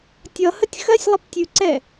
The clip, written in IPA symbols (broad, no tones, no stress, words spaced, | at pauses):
tʲʌhətʲ xɜsʲlˠəp tʲʉǀɛ